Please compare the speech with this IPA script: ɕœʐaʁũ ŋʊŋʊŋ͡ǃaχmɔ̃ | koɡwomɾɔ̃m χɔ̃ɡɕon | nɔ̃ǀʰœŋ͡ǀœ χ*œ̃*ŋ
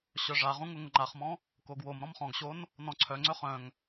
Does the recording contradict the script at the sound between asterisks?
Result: no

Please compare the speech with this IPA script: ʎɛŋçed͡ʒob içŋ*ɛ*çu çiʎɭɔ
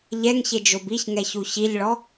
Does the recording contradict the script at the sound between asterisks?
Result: no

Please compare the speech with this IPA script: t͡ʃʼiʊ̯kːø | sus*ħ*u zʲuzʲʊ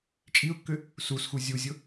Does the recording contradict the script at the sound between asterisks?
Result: yes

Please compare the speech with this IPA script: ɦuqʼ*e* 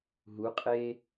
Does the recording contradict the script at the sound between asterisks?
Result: yes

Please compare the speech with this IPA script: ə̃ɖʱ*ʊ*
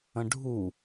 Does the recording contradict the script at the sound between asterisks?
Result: yes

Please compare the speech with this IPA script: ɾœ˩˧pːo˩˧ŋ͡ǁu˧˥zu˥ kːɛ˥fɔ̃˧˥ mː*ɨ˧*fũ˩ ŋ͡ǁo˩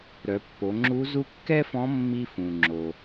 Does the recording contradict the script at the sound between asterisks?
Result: yes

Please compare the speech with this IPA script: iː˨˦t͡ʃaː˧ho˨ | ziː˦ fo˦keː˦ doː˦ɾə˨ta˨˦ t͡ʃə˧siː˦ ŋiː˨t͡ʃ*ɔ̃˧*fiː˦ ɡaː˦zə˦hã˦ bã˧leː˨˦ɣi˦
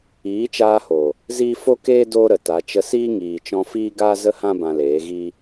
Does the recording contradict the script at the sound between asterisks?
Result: no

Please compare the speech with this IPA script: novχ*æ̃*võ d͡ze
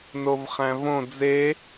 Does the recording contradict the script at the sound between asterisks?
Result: no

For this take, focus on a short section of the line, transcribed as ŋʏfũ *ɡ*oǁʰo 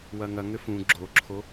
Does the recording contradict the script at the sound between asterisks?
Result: yes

